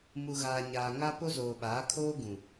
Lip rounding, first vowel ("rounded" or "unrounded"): rounded